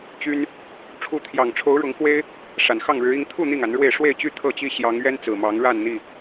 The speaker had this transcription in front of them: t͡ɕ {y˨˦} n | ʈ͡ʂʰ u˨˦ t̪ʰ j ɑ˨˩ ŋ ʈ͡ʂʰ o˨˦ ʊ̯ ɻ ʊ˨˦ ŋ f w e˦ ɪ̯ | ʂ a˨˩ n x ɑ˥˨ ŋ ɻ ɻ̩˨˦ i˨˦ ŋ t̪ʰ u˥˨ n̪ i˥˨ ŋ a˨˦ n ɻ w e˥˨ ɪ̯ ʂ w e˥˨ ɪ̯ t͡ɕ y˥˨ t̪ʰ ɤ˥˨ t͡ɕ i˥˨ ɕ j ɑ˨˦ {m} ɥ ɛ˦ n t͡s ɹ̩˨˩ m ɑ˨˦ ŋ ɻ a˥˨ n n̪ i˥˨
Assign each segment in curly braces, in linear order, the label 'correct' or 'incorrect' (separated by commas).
incorrect, incorrect